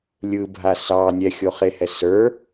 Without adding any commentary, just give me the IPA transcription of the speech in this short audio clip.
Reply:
lʲɯbʱa sɑ nʲɛxʲoχehɛ sə˞

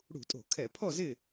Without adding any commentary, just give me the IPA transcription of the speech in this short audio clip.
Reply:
ɽṳ˧˩˧tʼo̤˧˩˧kʰɛ˧˩˧pʰɔ˥˨ zɪ˥˨

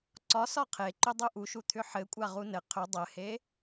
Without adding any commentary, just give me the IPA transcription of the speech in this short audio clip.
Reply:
ǀɒsɒ qʰeǃʏdˤu ʔuʃut̪ʰʏ ħɘkʷʼa ʁunɘ qʰʏ dˤɘhe

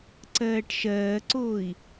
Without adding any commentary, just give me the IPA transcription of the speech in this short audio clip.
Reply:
ǀɜːʈʃɜːǀoːi̯

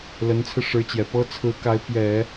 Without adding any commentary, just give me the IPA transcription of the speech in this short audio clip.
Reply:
lə˧˥nt͡sʰɹ̩˧ʂɻ̩˧˥t͡ɕjɛ˨˩ pɤ˥ t͡sʰɹ̩˧˥ka˧˥ɪ̯ pjɛ˨˩˦

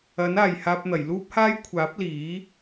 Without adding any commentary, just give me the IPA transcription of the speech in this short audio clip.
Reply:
ɐ˨˥naː˨j haː˧p̚n̪ɐ˨˩jluː˥p̚haː˥j kʷʰaː˨˥p̚liː˨˥

